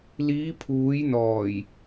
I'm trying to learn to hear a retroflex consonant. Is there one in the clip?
no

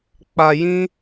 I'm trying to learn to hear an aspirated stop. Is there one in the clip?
no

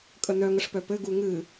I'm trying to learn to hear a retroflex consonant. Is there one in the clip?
yes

